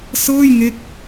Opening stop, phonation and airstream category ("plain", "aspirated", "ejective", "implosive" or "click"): plain